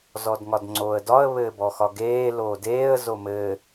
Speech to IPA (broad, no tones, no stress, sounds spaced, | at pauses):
z ɔ d ŋ ɒ d ŋ͡ǀ oː ə̯ d ɒ ə̯ β ɘː b ɔ x ɒ ɡ eː l oː d eː ə̯ z o m ɘ